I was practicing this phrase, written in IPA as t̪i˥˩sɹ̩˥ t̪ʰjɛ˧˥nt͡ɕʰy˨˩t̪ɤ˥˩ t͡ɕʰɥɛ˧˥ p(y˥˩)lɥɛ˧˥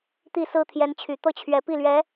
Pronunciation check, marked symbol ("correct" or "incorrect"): incorrect